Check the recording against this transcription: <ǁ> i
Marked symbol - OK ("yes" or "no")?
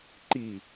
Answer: no